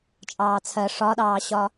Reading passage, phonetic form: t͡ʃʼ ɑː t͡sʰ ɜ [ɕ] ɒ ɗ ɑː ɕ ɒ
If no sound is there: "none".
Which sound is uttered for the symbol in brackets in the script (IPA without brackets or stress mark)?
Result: ʂ